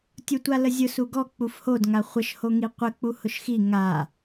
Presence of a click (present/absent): absent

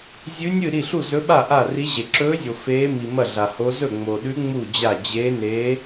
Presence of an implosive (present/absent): present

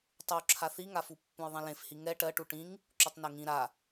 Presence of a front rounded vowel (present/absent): absent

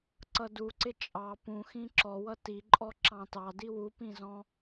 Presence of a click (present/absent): present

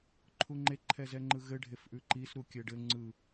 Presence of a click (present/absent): present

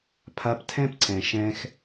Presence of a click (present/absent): present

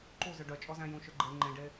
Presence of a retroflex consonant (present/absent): present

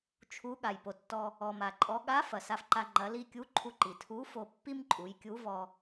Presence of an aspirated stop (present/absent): present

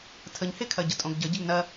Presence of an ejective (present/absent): present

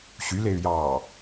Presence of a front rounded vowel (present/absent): present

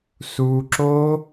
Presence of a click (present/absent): present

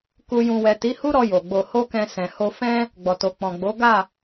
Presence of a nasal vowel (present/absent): present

